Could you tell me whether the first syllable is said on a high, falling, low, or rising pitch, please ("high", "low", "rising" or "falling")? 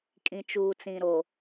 low